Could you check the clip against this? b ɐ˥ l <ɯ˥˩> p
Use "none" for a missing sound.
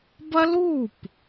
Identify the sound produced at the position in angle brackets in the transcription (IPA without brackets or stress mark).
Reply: u˥˩